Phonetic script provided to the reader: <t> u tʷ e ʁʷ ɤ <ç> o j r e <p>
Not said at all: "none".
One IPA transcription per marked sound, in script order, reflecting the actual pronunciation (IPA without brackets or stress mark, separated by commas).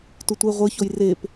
t, ç, p